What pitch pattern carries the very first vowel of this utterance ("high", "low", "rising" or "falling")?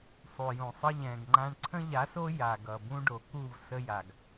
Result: low